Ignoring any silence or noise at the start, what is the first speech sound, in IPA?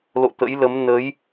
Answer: l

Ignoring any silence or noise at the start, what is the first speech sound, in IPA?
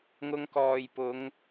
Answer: ŋ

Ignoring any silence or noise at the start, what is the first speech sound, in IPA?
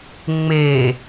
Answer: ŋ͡m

